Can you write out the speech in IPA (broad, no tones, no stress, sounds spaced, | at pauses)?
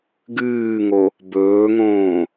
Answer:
ɡ ɨː ŋ o | b ɵː ŋ õː